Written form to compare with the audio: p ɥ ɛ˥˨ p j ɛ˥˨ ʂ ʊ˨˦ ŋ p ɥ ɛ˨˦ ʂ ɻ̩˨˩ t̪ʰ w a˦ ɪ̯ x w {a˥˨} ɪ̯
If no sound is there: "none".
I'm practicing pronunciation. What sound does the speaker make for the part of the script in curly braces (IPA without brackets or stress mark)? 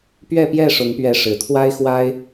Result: a˦